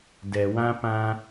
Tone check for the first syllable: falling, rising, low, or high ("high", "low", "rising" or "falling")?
low